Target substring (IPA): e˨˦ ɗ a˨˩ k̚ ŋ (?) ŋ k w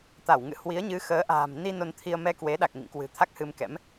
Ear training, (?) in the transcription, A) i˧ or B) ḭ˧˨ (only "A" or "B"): B